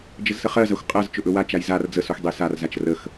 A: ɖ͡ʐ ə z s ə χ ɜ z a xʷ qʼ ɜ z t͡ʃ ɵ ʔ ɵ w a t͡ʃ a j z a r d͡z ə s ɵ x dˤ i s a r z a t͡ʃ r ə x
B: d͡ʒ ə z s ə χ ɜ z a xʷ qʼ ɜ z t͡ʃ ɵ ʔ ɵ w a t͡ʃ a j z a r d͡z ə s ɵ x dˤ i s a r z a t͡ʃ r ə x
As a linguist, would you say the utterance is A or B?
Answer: B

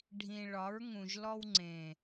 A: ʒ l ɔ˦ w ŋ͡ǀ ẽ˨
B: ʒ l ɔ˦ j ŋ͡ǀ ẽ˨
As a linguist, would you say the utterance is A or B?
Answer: A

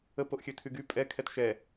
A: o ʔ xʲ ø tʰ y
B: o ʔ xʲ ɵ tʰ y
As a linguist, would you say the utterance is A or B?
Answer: A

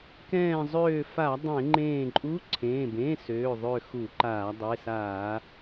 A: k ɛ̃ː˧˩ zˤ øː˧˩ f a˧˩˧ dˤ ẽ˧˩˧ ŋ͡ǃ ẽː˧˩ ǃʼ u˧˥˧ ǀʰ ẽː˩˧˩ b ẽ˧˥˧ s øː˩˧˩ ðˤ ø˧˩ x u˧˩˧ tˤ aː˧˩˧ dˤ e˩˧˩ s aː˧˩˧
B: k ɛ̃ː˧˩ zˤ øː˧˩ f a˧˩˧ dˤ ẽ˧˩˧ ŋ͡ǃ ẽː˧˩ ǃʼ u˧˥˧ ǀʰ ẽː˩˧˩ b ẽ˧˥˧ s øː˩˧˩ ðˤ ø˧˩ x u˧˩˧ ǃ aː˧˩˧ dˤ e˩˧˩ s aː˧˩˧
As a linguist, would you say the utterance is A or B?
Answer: B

